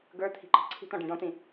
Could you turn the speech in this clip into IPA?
ɡə˞ t̪ʰi̤ǃɑ̤ǀʰi̤t̪ɔ̃ ɖĩɖɔ̃t̪ĩ

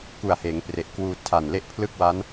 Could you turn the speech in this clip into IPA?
ku˨˩a̯heː˩˦ŋpre˨˩ʔkwuː˧ tʰa˨˩nle˥˩ʔ pʰlɯ˥˩k̚wa˦˥n

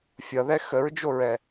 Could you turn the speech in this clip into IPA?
fʲʌðɛ xəɹd͡ʒoɹɛ

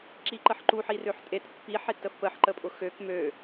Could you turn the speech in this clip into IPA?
ǁiǃəħǃu ħirøħtʼet pːi ħetəfpəħ ǃəpʼʊxøk mø

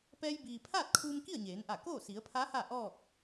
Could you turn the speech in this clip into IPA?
pɛː˧jbiː˩pʰaː˥˨t̚kʰuː˧m ki˥˨ə̯ɲeː˩˧nʔa˧˩koː˥˨ si˩˧ə̯pʰa˧˥ ha˥˨ʔɔː˥˨k̚

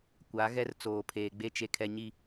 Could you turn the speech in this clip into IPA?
kʷa˨˦ɣɛ˦r t͡soː˨pʰeː˨ɡ͡be˦ t͡ʃe˨kʰɛ˨ɲi˨

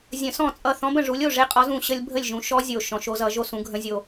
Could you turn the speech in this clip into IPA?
zʲə̃˨˩˦sɔ̃˥˩t͡sʼʌ˥˩ θɔ̃˧˥bə̃˨˩ʐu˩˥lʲ o˥˩ʐe˧˥qʼɔ˩˥z ũ˨˩ ɕə˥lʲ bʱə˥˩lʲʒũ˩˥ ʃɔ˧˥ zʲo˨˩ ʃɔ̃˨˩˦ʃo˩˥zʌ˨˩˦ ʒo˥sũ˩˥ ɡʱə̃˧˥zʲo˨˩

